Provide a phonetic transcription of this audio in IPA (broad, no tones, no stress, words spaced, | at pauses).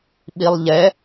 ɓilˠʎɛ